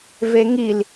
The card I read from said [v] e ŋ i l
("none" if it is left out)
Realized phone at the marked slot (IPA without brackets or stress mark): v